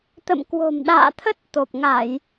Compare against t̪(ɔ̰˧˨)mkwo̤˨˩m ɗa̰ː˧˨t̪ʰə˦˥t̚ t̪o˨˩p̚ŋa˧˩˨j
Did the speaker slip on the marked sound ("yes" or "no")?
yes